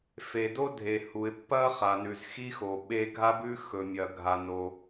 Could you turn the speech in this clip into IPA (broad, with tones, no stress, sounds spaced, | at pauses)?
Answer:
f e˩ d o˥ dʱ e˩ h u˩ ɪ̯ pː ɐ˥ χ a˩ n ʉ˩ z x i˥ x o˩ ɓ e˥ ɡʱ a˥ b ʉ˥ x ɵ˩ mʲ ɐ˩ ɡʱ a˩ n o˩